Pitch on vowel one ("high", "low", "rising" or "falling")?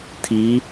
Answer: rising